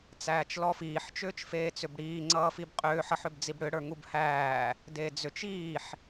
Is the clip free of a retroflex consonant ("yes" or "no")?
no